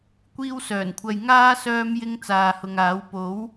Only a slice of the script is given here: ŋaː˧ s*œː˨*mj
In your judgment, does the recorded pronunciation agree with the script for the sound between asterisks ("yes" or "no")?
no